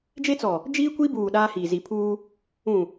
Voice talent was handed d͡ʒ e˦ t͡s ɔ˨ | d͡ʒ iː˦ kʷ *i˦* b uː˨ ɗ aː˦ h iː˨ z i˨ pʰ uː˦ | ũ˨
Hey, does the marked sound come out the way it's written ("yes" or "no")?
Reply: yes